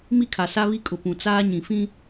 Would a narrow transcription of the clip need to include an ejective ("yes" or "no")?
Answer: yes